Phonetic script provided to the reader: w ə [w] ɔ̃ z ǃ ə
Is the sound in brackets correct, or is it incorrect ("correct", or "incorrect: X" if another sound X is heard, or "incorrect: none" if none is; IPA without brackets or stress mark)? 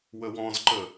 correct